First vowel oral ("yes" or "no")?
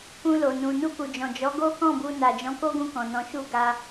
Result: no